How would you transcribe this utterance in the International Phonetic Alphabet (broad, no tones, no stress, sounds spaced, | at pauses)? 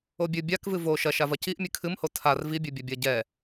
o bʲ ɨ bʲ a k v ɨ v o ʃ ɐ ʃ a v ɐ c i ʔ mʲ ɨ kʰ ɨ m h o tʰ a r v i bʲ ɨ bʲ ɐ bʲ ɐ ɟ ɛ